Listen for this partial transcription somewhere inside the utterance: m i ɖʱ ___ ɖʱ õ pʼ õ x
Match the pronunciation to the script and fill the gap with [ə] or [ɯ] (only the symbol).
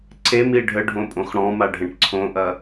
ə